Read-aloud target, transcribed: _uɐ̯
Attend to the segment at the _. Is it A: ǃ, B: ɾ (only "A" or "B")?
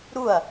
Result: B